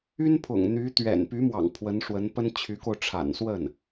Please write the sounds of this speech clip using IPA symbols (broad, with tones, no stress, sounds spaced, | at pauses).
y˥ n pʰ ʊ̰˨˩ ŋ n̪ y˧˥ t̪ ɥ ɛ̰˨˩ n p y˧˥ m w ɑ̰˨˩ ŋ pʰ w ə˧˥ n ʂ w ə˧˥ n p ə˥ n t͡ɕʰ y˧˥ k o˧ ʊ̯ ʈ͡ʂʰ a̰˨˩ n s w ə˥˩ n